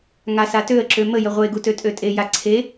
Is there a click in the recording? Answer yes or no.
yes